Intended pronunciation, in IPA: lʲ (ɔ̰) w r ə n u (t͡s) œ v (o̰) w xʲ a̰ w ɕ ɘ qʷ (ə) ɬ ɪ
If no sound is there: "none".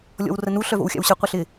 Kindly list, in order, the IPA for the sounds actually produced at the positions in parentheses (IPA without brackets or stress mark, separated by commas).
ɔ̰, ɬ, o̰, ə